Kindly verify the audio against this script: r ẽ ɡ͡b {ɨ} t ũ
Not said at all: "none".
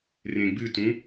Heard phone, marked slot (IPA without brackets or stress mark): ɨ